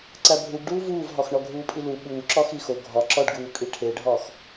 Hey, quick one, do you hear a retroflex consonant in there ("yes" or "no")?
yes